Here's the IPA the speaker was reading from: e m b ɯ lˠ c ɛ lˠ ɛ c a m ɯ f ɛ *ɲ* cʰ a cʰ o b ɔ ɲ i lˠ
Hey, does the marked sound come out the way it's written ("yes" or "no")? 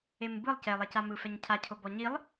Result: yes